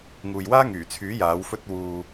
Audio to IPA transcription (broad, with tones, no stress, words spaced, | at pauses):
ŋuː˨jwaː˥ŋyː˨˩t͡sʰyː˨˥ jaː˨˥wfɵ˥t̚ wuː˨